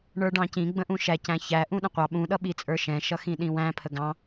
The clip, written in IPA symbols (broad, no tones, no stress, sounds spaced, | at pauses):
ɳ ə˞ ɖ ɑ̃ c ĩ ɡ͡b ə̃ ʔ ũ ʃ æ c æ̃ ç æ ʔ ũ ɗ ə̃ qʷ ɑ ɓ ũ ɗ ʌ ɓ i t͡sʼ ə˞ ʃ ɛ̃ ʃ ʌ x ĩ ɗ ĩ w æ̃ pʰ ə ɡ ɑ̃